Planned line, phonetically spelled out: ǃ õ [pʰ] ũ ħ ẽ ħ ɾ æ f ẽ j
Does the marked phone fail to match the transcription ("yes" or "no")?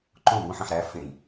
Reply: yes